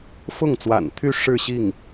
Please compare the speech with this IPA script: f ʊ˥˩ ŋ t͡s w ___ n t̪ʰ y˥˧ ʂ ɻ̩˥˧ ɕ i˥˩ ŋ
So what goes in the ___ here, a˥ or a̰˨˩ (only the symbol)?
a̰˨˩